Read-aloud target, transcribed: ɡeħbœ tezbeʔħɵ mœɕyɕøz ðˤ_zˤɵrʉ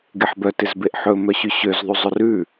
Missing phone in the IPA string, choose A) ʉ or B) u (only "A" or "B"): B